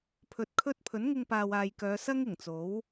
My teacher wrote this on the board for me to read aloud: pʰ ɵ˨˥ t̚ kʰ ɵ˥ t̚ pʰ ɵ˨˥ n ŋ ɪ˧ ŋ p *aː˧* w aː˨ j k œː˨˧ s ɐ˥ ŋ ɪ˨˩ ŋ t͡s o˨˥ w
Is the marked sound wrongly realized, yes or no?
yes